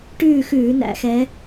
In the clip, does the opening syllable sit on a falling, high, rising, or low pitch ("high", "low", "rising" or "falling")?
falling